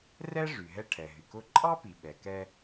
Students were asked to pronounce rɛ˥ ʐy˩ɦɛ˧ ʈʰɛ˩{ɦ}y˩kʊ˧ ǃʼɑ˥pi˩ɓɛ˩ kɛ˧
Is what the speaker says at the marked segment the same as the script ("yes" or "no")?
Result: yes